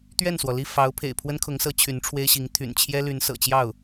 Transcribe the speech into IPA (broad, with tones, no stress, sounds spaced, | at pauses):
t̪ ɥ ɛ˥˩ n s w ɔ˩ l i˥˩ f ɑ˧˥ ʊ̯ pʰ ḛ˨˩ ɪ̯ pʰ w ə˥ n kʰ ʊ˧˥ ŋ s ɤ˧˥ t͡ɕʰ y˧˥ n ʈ͡ʂʰ w e˥ ɪ̯ ɕ i˧˥ ŋ t̪ʰ y̰˨˩ n t͡ɕʰ j ɛ˥ l y˧˥ n s ɤ̰˨˩ t͡ɕ j ɑ˥˩ ʊ̯